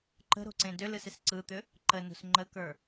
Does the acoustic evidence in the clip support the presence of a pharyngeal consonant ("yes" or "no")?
no